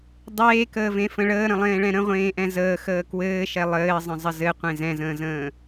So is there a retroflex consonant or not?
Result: yes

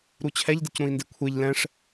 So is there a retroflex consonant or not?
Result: yes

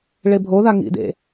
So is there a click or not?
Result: no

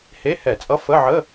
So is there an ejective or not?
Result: yes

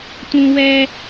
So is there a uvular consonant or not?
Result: no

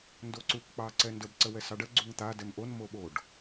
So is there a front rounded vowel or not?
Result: no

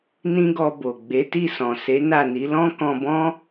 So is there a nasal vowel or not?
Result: yes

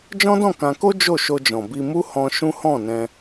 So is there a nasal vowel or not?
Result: yes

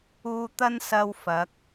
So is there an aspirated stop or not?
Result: no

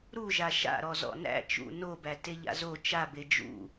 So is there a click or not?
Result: no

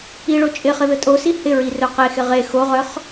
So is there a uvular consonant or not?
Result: yes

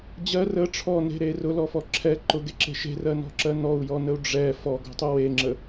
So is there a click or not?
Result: yes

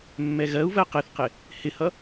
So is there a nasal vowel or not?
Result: no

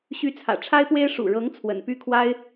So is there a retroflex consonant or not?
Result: yes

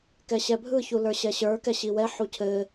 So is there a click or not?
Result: no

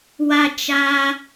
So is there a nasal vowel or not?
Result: no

